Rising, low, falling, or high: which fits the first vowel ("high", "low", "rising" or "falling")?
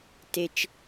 low